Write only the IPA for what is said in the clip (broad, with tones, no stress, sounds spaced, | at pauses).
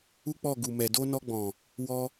u˦ k͡p ɔ˦˨ ɡ u˨ m ɛ˨ d o˧ n ɔ˧ ɡ͡b ɔ̃˨ | w ɔ˧